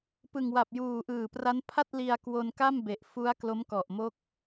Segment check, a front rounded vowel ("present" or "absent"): absent